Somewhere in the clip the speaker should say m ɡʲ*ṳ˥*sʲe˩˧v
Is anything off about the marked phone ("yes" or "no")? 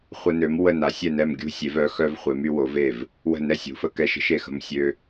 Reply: yes